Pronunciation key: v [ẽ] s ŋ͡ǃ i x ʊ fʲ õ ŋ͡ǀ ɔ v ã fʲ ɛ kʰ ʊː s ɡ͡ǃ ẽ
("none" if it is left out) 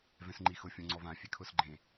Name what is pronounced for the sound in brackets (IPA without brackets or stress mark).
ɛ̃